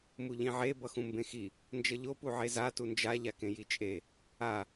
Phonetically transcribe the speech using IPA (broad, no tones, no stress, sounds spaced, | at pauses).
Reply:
m u ʎ ĩ ʕ e b ʌ x ũ m b ẽ x i | n d͡ʒ ʌ ʎ o p u ʕ e z a t u n d͡ʒ a ʎ a k ẽ j i t͡ʃʼ e | a